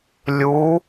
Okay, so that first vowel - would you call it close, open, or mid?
close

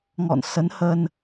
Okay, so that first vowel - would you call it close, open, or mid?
mid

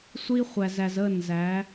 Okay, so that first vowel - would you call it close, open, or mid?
close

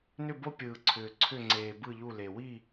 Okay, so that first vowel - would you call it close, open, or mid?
close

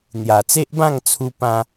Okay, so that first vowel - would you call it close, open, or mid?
open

